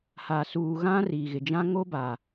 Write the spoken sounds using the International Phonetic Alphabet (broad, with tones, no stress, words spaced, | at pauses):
ha˨ suː˨ ɣã˦ri˨ɣɪ˨d͡ʒã˦ ŋo˦ba˨